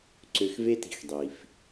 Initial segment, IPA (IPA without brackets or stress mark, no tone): ǀ